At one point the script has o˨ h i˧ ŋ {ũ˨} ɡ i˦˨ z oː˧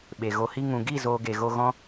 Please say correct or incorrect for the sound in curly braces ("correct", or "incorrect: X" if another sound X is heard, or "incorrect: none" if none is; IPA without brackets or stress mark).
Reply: correct